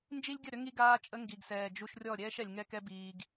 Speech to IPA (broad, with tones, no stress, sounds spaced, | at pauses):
n d͡ʒ i˦ lʲ ɡʲ ə˦˨ ɾ ʏ˦ ŋ i˧ ɡ aː˧ t͡ʃʼ ə˧ ŋ ɡ i˨ ɡ s ɛː˨ d͡ʒ u˧ ʃ rʲ ɔ˦˨ ɾʲ ɛː˦ ʃ ɛ˨ lʲ ŋ ɛ˦ k ɛ˦ b iː˧ ɡ